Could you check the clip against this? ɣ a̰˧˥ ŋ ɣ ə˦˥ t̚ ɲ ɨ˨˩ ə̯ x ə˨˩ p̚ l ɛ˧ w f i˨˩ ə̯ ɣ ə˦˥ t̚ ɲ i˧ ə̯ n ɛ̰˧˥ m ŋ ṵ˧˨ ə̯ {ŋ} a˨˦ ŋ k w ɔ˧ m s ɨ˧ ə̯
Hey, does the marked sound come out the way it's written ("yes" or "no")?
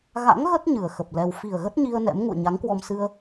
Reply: no